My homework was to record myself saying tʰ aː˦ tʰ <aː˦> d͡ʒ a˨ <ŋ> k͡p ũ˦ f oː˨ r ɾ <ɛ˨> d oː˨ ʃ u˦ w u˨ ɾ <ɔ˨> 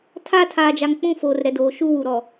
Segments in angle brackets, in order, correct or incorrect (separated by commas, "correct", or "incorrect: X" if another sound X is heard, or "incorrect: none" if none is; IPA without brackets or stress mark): incorrect: aː˨, correct, correct, correct